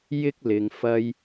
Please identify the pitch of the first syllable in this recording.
high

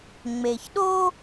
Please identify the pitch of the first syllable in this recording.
low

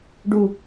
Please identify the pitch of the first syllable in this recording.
high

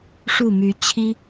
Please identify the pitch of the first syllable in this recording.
falling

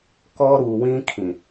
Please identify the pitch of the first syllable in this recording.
high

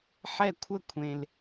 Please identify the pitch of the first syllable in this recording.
falling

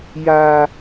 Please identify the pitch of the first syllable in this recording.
high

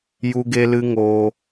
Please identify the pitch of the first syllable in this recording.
high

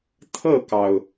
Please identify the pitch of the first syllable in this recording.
falling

